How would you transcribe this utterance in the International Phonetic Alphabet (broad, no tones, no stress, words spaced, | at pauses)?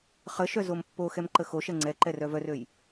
χəʃœ zompːoxɛm ǃəxoʃɛ ŋ͡ǀɛǃɛ rœvœrøj